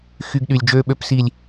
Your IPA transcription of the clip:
xy˨ɡ ɗy˨lʲ d͡ʒøː˨ɓø˨psi˨lʲ

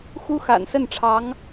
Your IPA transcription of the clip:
xu˥xa̰˨˩nsə˥˩nʈ͡ʂʰɑ˧˥ŋ

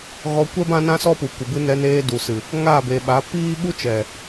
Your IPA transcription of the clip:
ɣɔ˧kʷɛ˦ bã˦nã˦sɔ˦pu˨ kʷə˨bɨ˧nɛ˧neː˧ du˨sɨ˨ | ŋaː˦˨be˨ɓa˨˦ piː˦ ɓu˦t͡ʃɛ˨

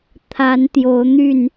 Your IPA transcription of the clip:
t̪ʰa˨˦nt̪jo˨˦ʊ̯n̪y˥˨n

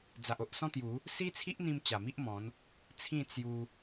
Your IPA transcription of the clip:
d͡za˨ʔo˨ʔsɔ̃˦t̪ju˨˦ | si˦t͡sʰi˦ʔn̪ĩ˧m t͡ɕa˨˩mi˦ʔmɔ̃˨˦n | t͡sʰĩ˥˧ t͡sju˧

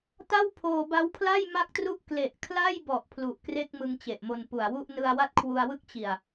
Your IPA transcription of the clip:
ta˥˩wpʰoː˧ ba˦˥wpʰla˥˩j ma˥˩k̚tru˥˩ʔ kle˨˩ʔkʰla˥˩jbɔ˨˩ʔ pʰlu˨˩ʔkre˥˩k̚mɯ˧ŋ t͡ɕe˨˩ʔmo˧npu˨˩a̯wu˥˩ʔ nɯ˧a̯wa˥˩t̚kʰwu˧a̯wɯ˥˩k̚ t͡ɕi˨˩a̯

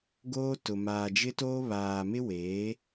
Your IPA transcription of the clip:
ɡoː˦tʊ˨ maː˨d͡ʒɪ˦toː˦ βaː˨mɪ˦weː˨˦

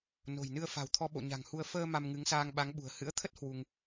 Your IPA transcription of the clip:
no̤˨˩jnɨ˧ə̯ fa̤˨˩wt̪ʰɔ˧ɓo̰˧˨ ɲa̤˨˩ŋhu˧ə̯ fəː˧ ma˧mŋɨ˨˦ŋsaː˧ŋ ɓa˨˦ŋ ɓṳ˨˩ə̯ hɨ̰˧˥ə̯t̪ʰə˦˥t̚ hwu˧ŋ

